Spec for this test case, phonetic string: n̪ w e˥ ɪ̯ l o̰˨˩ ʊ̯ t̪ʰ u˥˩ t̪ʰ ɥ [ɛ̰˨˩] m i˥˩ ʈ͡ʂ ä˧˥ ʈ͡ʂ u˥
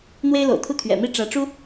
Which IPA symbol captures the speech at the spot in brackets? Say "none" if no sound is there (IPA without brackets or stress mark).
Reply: ɛ̰˨˩